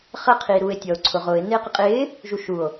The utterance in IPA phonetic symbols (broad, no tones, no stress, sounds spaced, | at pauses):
χ ə qʰ iː ɾ uː e̯ tʲ ɔ o̯ ǀʰ ʊ ʁ ʊː e̯ n ɪː q ɪ qʼ ɪː | ʒ u ʃ u o̯